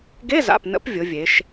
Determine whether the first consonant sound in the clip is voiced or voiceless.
voiced